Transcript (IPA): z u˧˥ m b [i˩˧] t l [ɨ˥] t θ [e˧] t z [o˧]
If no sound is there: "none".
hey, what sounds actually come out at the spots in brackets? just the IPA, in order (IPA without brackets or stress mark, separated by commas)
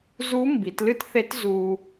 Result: i˩˧, ɨ˥, e˧˥, u˧